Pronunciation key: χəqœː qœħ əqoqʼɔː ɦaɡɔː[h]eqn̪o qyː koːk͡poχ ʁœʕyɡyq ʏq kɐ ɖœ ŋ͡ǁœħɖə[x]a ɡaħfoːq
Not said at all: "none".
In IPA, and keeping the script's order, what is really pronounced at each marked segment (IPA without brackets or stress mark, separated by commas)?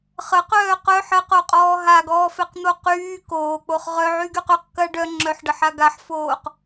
f, ħ